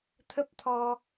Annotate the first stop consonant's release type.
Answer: aspirated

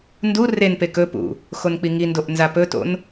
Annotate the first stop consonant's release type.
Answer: plain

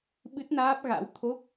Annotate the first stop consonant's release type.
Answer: implosive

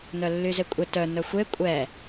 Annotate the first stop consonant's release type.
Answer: ejective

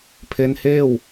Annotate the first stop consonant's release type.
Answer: aspirated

